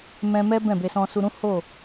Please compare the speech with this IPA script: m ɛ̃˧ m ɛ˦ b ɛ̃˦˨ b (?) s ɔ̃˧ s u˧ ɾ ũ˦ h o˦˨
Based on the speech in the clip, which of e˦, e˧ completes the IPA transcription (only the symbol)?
e˧